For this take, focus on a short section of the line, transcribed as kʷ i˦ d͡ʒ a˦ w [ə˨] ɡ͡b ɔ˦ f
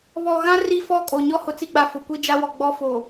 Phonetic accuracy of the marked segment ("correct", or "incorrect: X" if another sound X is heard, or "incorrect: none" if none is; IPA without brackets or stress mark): incorrect: ɔ˨